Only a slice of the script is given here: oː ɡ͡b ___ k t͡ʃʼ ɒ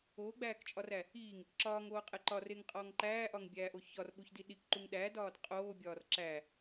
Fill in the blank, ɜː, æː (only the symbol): æː